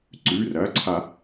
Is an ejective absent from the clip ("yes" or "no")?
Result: yes